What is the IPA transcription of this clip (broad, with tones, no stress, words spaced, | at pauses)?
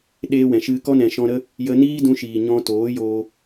ɗeː˦wɛ̃˨ʃɨ˦ kɔ˦nɛ̃˨ʃɔ̃˧ɾə˦ | jə˧niː˦dũ˧ʃiː˨ ɲɔ̃˧toː˨˦joː˧